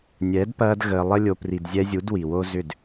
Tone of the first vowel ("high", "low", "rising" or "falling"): rising